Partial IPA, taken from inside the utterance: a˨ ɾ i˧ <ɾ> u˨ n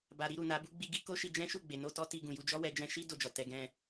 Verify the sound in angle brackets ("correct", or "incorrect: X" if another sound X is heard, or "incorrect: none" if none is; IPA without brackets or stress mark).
correct